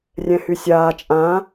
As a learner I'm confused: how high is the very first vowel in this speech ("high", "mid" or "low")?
mid